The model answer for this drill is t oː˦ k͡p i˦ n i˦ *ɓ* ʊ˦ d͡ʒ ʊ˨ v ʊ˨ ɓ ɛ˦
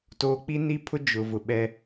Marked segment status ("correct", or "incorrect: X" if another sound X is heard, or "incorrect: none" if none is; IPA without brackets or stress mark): incorrect: pʰ